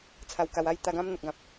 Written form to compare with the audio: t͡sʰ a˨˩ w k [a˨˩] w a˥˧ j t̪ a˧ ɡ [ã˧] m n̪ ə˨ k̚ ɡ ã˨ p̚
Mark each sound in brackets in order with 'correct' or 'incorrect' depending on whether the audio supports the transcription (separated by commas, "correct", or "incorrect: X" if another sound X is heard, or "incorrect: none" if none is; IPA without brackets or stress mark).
correct, incorrect: ã˦